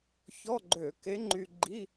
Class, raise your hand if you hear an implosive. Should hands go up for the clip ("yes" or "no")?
no